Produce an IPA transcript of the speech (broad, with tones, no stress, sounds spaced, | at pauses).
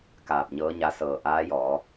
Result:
k aː˧˩ p̚ ɲ ɤː˧˥ ɲ a˧ s ɤː˧˩ ʔ aː˧˥ j ɔː˩˧